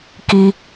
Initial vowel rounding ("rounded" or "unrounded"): unrounded